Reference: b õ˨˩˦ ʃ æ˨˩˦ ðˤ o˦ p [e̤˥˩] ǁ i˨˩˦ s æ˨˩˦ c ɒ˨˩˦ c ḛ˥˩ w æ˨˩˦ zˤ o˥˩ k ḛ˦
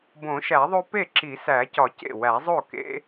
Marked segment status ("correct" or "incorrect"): incorrect